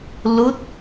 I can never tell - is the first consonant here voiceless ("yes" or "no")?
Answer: no